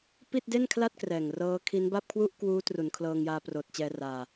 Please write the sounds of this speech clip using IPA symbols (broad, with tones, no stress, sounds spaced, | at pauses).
p i˥˩ t̚ d e˥˩ n kʰ l a˥˩ t̚ k r ɛː˨˩ ŋ r ɤː˦˥ kʰ i˦˥ n b a˥˩ p̚ kʰ w u˥˩ ʔ k w uː˦˥ t r u˩˦ n kʰ l ɤː˧ ŋ j aː˧ p r oː˨˩ t̚ t͡ɕ ɛː˧ r aː˧